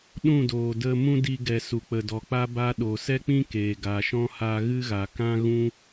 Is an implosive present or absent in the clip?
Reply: present